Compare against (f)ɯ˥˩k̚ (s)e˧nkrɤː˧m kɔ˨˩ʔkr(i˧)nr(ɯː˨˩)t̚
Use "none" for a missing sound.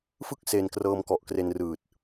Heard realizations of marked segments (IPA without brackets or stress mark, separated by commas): f, s, e˧, ɯː˨˩